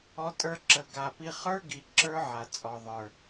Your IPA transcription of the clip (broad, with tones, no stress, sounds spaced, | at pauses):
ɔ˧ tʼ ə˞˧ ǁ ə˨ ɡ a˨ p i˧ χ ə˞˦ ɡ i˨ ǁ ə˞˦ ʕ a˨ t͡sʼ ɔ˨ ðˤ ə˞˨